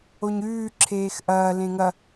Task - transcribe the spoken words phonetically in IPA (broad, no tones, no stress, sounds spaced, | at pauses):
o ɲ ʉː ǁʰ eː x ʔ ɐː l ẽ ŋ ɐ